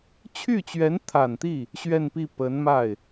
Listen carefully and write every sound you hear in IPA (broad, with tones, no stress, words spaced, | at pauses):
t͡ɕʰy˥˩t͡ɕɥɛ˧˥nt̪ʰa˨˩nt̪i˥˩ | ɕɥɛ˥˧npi˥˩ pə˧˥nma˥˩ɪ̯